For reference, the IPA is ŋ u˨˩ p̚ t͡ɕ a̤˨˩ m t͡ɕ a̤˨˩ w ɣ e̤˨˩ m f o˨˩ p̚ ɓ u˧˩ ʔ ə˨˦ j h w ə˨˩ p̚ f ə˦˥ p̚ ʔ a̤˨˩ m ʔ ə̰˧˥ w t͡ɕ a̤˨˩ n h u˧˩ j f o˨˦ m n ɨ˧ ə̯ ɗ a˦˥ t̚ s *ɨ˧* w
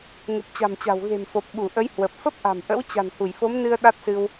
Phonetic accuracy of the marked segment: correct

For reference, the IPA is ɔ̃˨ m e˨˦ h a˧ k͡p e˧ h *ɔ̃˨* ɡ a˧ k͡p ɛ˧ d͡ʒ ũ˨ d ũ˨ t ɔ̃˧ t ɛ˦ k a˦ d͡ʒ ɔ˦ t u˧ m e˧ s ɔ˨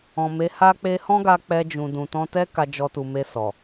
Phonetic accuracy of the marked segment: incorrect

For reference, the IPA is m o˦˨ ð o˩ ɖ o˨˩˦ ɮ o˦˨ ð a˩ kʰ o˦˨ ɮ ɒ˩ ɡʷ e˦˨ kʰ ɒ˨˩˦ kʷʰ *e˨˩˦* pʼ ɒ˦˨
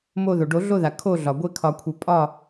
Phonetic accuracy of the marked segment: correct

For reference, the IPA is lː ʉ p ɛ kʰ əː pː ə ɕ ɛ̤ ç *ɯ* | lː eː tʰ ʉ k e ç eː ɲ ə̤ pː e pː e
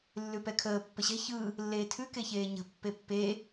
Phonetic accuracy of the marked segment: correct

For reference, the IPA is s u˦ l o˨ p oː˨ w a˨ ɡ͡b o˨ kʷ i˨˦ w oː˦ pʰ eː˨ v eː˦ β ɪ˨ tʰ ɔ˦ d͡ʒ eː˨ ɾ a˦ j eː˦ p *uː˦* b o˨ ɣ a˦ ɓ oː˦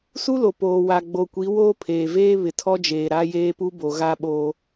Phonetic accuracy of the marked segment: incorrect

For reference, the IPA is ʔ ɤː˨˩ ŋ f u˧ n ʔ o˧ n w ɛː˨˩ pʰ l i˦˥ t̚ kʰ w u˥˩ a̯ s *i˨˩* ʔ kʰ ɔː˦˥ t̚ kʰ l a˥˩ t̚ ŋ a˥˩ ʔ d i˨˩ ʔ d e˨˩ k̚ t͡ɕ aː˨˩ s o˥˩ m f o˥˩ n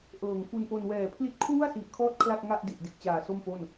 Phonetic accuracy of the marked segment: correct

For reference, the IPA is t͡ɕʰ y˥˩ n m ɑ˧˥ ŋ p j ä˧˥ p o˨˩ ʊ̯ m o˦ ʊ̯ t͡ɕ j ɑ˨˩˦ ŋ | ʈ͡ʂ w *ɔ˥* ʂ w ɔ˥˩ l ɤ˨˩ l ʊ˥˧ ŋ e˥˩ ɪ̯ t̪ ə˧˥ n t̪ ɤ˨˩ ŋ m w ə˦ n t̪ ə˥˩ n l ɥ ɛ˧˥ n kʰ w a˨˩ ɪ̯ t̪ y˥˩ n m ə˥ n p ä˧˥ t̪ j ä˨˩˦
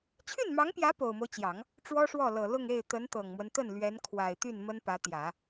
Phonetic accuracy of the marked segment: correct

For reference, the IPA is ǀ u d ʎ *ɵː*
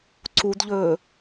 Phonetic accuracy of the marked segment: correct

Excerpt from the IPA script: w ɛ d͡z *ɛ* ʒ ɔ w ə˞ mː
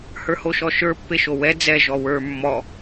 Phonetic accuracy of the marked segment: correct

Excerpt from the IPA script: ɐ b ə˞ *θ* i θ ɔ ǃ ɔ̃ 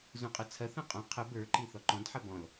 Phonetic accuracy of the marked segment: incorrect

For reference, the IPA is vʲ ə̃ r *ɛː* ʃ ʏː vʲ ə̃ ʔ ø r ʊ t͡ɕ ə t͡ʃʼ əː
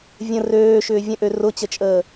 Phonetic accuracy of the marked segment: incorrect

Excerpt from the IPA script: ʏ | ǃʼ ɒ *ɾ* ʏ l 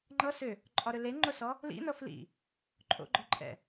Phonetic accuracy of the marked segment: correct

